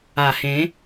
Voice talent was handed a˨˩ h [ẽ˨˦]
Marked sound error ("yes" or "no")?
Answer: no